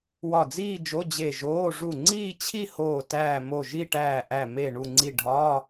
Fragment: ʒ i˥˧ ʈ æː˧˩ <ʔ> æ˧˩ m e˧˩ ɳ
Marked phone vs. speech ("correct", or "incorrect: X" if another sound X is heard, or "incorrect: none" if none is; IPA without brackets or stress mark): correct